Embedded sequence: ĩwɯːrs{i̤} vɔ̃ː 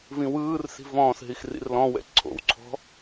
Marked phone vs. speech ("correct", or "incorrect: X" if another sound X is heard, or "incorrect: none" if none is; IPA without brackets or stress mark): correct